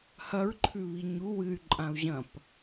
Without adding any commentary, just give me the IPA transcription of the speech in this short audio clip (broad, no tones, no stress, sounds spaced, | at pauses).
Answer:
h ɐ ɹ ǃʰ ʉ β i ɲ u w ɨ y̯ ǃʼ ã u̯ ʑ ɐ̃ p